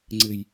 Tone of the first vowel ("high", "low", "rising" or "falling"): low